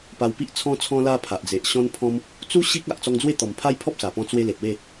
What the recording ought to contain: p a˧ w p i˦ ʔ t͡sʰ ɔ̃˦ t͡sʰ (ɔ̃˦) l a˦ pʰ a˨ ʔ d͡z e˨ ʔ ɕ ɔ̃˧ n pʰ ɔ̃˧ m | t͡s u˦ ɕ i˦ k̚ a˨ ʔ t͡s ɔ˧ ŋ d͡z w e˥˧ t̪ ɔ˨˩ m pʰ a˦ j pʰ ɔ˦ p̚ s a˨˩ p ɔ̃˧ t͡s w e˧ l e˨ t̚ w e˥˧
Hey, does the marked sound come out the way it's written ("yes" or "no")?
yes